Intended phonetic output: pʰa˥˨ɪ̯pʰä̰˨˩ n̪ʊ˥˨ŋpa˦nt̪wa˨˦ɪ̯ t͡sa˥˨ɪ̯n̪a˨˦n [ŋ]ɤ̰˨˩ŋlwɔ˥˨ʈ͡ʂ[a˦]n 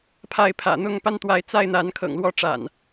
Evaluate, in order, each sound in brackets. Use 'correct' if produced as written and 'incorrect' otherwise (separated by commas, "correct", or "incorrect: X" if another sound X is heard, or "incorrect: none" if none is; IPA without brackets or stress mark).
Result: incorrect: kʰ, incorrect: a̰˨˩